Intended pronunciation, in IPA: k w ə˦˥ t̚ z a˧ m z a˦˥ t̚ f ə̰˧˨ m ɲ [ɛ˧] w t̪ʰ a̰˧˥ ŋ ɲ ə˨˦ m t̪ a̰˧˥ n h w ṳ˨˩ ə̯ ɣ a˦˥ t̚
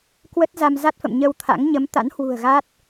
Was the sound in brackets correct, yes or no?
no